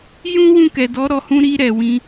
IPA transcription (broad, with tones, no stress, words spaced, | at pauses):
jũ˦ wũ˦˨kɛ˨dɔ˨˦ ɾɔ˧hũ˦ ɾi˧ ɾɛ˨wĩ˧